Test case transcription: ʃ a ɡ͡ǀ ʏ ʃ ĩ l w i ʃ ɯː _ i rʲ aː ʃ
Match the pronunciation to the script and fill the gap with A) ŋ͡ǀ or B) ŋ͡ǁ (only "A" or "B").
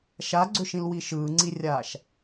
A